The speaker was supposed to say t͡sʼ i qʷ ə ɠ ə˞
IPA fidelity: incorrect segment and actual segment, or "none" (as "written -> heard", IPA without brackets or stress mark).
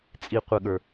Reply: none